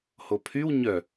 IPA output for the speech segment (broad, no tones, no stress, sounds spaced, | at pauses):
h o pʰ y w ɲ œ